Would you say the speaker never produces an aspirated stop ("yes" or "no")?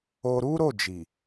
yes